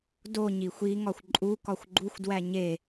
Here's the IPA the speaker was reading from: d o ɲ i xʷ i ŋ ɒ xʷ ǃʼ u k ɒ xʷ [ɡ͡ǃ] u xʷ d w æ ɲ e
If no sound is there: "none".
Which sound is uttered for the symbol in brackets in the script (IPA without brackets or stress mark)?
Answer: ɡ͡ǃ